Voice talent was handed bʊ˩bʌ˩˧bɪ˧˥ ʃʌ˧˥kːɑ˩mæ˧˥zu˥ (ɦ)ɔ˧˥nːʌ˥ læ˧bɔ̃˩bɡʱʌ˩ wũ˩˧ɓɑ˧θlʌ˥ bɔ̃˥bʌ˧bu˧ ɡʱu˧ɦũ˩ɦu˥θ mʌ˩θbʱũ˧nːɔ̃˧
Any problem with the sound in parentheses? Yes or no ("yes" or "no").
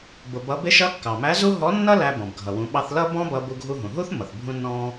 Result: no